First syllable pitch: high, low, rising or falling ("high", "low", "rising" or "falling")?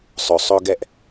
low